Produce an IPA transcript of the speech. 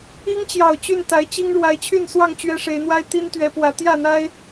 i˦ ŋ t͡ɕ j ɑ˨˩ ʊ̯ t͡ɕ y˥˨ n t̪ a˨˦ ɪ̯ t͡ɕ i˦ ŋ ɻ w a˨˦ ɪ̯ t͡ɕʰ y˥˨ n s w ɑ˥˨ ŋ t͡ɕ ɥ ɛ˦ ʂ e˨˦ ɪ̯ n̪ w a˦ ɪ̯ t̪ i˦ n t̪ ɥ ɛ˨˦ p w ä˨˦ t̪ j ä˥˨ n̪ a˦ ɪ̯

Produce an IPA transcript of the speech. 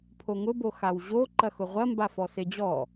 pʰ o ŋ ʊ b o x a w ʑ o ǃ ɐ x ʊ ʁʷ ɐ m b a f ɔ s e d͡ʑ ɔ

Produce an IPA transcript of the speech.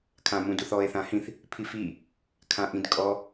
kʰ ã m ũ d u θ ɔ e̯ θ ã h ĩ θ | pʰ i f i | kʰ ã ʔ ĩ d kʼ ɔ

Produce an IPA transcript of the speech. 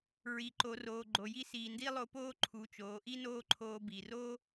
ɹ i˩ ǃ o˩˧ r oː˩ ɡ͡ǃ o˩ j i˧˥ s iː˩ n d i˥ lˠ o˧˥ p oː˥ ǃʰ u˩˧ t͡ʃ oː˩˧ ʔ i˥ n oː˥ ǃʰ oː˧ b i˩ r o˥

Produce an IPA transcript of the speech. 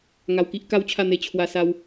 ŋ a˨˩ w k i˦ ʔ k a˦ w t͡ɕʰ a˥˧ n̪ e˧ t͡ɕʰ w a˧ s a˦ w

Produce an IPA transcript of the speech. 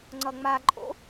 ŋ͡ǀ ʌ ŋ͡m a ǃʼ o̰

